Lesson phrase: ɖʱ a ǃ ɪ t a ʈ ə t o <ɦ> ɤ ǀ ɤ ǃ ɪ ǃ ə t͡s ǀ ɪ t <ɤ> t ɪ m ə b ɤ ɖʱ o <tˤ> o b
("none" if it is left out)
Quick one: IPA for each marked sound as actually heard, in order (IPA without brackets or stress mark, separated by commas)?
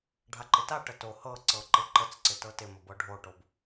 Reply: h, ɤ, ʈ